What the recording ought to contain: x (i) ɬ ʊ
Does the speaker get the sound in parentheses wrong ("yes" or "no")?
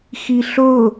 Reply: no